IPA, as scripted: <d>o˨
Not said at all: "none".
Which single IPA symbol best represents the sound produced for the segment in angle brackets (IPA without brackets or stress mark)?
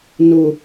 n